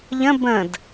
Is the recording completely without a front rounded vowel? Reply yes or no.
yes